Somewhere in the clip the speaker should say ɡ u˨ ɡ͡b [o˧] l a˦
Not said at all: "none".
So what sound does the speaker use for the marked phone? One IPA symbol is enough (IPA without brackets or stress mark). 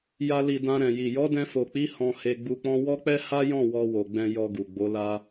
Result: o˨˦